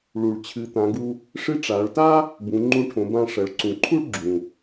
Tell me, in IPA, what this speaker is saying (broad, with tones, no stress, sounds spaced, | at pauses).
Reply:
ɭ u˩ ɭ t͡ɕʰ ɨ˩˧ t̪ ã˩˧ ɡ u˧ | ʂ ɨ˧˥ ʈ͡ʂ a˩˧ ɭ t a˥ | b ũ˩˧ ŋ͡ǃ ũ˧ ʈʰ õ˩˧ b ã˧ ʂ ɐ˩˧ ɭ ǀ ũ˩˧ ǃʰ u˥ ɭ ɡ͡ǁ ũ˩